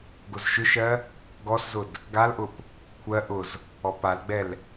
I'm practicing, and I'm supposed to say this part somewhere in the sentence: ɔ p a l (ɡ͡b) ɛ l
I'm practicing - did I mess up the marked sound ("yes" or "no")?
no